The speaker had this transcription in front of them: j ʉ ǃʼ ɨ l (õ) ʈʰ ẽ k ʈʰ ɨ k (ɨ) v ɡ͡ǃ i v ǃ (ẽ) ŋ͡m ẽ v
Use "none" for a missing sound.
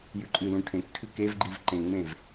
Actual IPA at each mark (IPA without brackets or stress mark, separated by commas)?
ũ, e, ẽ